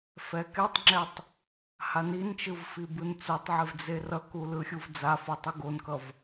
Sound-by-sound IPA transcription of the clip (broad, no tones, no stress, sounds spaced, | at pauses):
f ɛ k ɛ tˤ ŋ͡ǁ ɛ tˤ | h a n i n t͡ʃ ɯ v f i b ɯ n t͡s o tˤ ʕ e v d͡z e r ʌ k u l ɯ xʲ u v d͡z a f o tˤ u ɡ o n k ʌ v